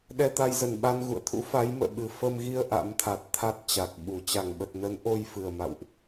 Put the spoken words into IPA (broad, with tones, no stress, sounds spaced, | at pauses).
ɗ ɛ˧ t̪ a˧ j z ə˨˩ n ɓ a˧ n ɣ ṵ˧˨ ə̯ t̪ʰ ṵ˧˥ f a˨˦ j m ə̰ː˧˨ ɓ ɨ˨˩ f ə˧ m ɣ i˧ ə̯ ʔ a̰˧˥ m t̪ʰ a˨˩ t̚ t̪ʰ a˦˥ t̚ t͡ɕ a˨˩ k̚ ɓ u˧˩ t͡ɕ a˧˩ ŋ ɓ ə˨˩ t̚ n ə˨˦ n ʔ o˧ j f ɨ˨˩ ə̯ m a̰˧˨ w ʔ